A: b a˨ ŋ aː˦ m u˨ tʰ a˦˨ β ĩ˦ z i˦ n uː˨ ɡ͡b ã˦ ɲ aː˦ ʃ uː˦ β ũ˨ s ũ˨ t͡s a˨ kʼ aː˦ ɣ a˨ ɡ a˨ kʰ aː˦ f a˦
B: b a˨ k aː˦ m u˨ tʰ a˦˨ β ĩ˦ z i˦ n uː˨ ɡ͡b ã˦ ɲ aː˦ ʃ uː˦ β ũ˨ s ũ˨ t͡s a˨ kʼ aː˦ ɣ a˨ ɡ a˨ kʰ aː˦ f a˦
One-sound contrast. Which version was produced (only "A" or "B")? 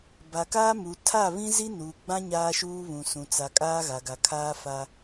B